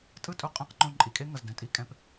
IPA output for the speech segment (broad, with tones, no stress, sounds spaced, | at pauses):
tʼ ɯ˥ tʼ u˧ qʼ ẽ˧˥ q ŋ͡ǃ õ˧ ǃʼ i˩ kʼ e˥ ŋ ʌ˩ z d ɛ̃˩ tʼ i˥ kʼ ɛ̃˧˥ p